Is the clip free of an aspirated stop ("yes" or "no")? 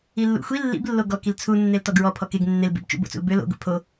no